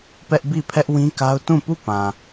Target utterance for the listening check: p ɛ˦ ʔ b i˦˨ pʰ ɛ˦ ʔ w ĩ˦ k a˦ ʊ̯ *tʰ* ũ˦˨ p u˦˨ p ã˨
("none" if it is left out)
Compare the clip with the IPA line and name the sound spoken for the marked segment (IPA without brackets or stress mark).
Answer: t